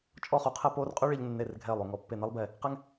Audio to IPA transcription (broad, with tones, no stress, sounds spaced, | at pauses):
t͡ʃʼ ɔ˥˧ χ o˧ qʰ ɛ˥˧ p oː˥ r qʼ y˥ ɭ e˧ ʎ nː e˧˩ r ɡʱ ɛː˧˩ lˠ o˧˩ ŋ ɔ˧˩ pː e˧˩ n e˥ lˠ b ɛ˧˩ | q ɛ˥ ŋ